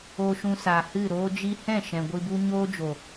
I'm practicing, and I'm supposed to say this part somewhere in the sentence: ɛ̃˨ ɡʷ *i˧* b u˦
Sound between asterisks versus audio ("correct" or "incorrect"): correct